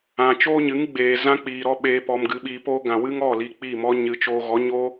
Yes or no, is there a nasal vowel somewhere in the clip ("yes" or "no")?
yes